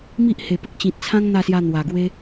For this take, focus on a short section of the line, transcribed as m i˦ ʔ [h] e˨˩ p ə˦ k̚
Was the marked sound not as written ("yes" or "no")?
no